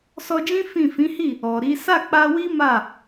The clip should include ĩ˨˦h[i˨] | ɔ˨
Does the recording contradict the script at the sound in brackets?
yes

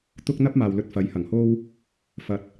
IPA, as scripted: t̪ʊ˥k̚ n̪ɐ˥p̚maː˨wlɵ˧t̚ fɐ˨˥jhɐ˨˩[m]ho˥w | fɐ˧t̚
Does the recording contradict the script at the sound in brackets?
yes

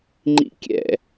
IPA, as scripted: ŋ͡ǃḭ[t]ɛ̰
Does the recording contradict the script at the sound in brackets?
yes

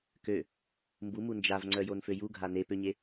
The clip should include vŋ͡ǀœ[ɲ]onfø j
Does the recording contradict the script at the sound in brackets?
yes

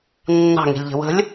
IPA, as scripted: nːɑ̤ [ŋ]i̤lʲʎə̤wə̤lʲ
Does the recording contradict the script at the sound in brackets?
no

